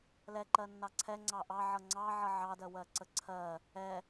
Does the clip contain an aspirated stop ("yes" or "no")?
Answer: yes